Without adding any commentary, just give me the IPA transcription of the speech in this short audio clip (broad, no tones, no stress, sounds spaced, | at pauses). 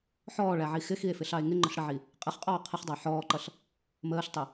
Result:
ħ ɔː ɭ æ ʕ i x ɪ x i e̯ f ɪ ɬ ɑ e̯ ŋ ɪ ŋ͡ǃ ə ɬ ɽ ə ʕ i | qʼ ɪ χ qʼ ɔː qʰ ɪ χ dˤ ɑ ħ ɔː ǃ ʌ ɬ | m əː ɬ tˤ ʊ